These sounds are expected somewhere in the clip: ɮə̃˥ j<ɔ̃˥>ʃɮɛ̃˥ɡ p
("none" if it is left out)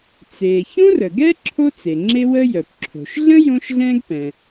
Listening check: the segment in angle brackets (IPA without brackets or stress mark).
õ˥